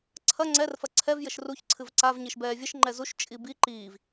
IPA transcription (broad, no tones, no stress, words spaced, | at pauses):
ǀʰɐ ŋ͡ǀɛrfɐ ǀʰɛv jɘʃruç ǀʰɨvǀavɲiʃbɛː vʲɘʃ ŋ͡ǃɛzuʃ t͡ʃʼibi ǃiːv